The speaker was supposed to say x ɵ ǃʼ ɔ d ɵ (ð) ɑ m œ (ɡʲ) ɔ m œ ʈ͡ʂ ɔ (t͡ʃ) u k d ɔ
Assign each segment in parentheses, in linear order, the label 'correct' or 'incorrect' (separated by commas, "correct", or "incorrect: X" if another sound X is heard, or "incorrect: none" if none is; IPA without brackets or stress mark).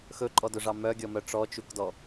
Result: incorrect: ʐ, correct, correct